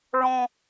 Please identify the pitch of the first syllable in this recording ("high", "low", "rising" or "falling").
high